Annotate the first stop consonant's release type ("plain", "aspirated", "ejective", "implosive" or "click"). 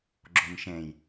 click